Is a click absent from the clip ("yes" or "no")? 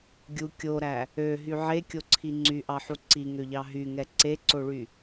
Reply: no